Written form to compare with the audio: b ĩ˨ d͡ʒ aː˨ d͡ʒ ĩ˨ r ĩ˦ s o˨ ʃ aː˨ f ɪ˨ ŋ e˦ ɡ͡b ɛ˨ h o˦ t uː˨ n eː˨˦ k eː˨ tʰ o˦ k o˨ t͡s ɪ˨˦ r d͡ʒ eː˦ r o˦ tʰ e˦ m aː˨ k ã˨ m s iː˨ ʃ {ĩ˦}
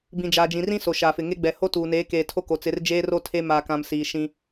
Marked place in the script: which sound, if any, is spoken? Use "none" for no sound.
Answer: ĩ˦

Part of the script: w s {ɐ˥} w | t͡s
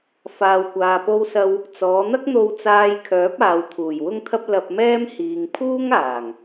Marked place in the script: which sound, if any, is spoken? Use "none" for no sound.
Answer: ɐ˥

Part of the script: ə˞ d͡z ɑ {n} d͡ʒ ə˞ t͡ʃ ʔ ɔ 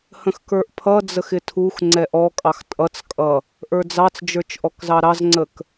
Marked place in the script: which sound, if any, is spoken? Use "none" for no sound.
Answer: t͡s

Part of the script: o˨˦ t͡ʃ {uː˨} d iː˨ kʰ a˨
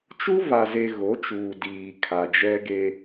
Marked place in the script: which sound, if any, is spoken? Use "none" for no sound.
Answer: uː˨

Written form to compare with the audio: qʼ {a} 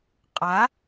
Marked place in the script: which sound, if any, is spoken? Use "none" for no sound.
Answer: a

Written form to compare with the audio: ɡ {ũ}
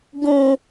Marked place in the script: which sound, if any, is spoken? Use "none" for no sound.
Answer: ũ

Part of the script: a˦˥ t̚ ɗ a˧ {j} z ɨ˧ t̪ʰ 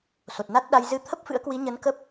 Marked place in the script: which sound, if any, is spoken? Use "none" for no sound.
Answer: j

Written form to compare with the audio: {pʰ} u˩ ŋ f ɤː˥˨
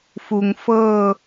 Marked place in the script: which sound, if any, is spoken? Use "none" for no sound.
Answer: f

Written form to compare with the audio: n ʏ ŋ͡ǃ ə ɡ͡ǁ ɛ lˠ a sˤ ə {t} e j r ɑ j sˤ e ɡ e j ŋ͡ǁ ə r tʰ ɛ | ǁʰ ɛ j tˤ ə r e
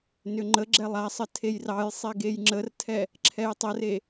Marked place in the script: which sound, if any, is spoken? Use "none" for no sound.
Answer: tʰ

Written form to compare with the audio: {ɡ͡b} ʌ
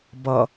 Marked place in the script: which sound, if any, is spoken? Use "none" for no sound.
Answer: b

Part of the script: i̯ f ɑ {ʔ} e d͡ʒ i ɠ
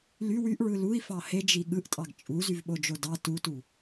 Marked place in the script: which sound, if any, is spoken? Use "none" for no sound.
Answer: h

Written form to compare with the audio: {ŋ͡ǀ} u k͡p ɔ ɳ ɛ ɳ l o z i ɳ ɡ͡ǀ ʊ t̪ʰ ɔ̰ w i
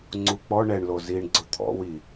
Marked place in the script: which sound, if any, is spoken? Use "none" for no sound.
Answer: ŋ͡ǀ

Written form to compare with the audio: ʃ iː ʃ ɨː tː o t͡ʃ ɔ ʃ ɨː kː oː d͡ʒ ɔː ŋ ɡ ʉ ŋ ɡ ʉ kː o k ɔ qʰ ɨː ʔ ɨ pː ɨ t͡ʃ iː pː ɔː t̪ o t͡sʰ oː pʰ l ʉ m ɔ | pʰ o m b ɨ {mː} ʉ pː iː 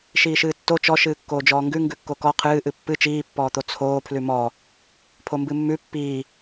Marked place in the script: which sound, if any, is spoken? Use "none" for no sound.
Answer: mː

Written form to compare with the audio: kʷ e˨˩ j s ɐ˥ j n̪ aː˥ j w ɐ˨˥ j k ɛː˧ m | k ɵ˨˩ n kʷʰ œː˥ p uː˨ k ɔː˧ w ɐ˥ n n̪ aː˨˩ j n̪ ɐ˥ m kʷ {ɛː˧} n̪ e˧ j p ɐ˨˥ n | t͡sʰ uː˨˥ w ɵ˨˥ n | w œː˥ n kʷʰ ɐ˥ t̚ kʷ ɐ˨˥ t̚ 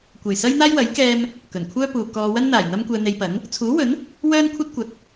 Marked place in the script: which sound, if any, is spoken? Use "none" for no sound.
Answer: ɛː˧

